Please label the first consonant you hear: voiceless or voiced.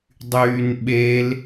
voiced